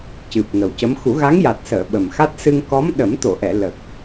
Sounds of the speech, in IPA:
cɨ˨˩p̚ŋə˨˩wcə˧˥m xu˨˩˦ɣa˧˥ŋja˨˩t̚səː˨˩˨ ɓə˨˩mxa˦˥t̚ sɨ˧ŋkɔ˧˥m ɗə˨˩˦mt̪o˨˩˨ʔɛ˨˩˨ lə˨˩k̚

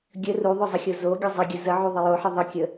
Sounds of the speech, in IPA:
ɡʲə ruðˤozˤəxʲo zoɡʲə zˤɪɡʲə zəʕu ðˤɪjoħɪ ðˤəkʲə

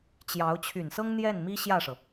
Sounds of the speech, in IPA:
t͡ɕjɑ˧˥ʊ̯ t͡ɕʰy˨˩nsɤ˥ŋ n̪jɛ˥˩n mi˥ɕjä˥˩ʂɤ˩

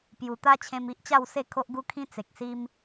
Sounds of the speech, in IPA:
pju˨˩t̪a˦ t͡ɕʰẽ˧mi˦ʔt͡ɕa˥˧wse˥˧ kʰo˦ʔɡu˦kʰĩ˦ t͡se˨k̚si˦m

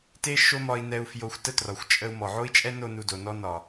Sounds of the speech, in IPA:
te˦ ʃo˦mɒ˧i̯nɛ˧u̯ fjo˧xʷ tə˦trɒ˨xʷ t͡ʃʼə˧u̯ mɔ˨ ʕo˦i̯t͡ʃʼɛ˦no˧ nu˨do˨nɔ˧ nɒ˨

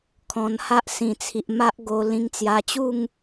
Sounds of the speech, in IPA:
kʰɔ̃˧nha˦ʔ sĩ˨˩t͡sʰi˨ʔ ma˦ʔɡo˧ lĩ˧ŋt͡sja˧t͡ɕu˥˧ŋ

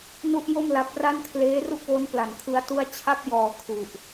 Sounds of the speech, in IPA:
nu˥˩ʔjo˥˩m la˦˥p̚ ra˥˩nkʰleː˦˥ru˥˩k̚wo˦˥n pla˨˩nkʰɯ˦˥a̯tu˥˩a̯ t͡ɕʰa˥˩p̚jɔː˨˩ kʰu˨˩ʔ

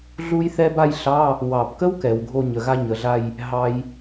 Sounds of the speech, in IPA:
ɮu˥jθɛ˥ba˥˧jɬɑ˧˥˧ | wɑ˨˩bkə˥w kɛ˩˧wɡʱo˥˧ɲə˩˧ ɣa˥ɲə˩˧ɮa˥˧j | ɦɑ˥j

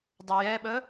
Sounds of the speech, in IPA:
dˤʊjɛɓə

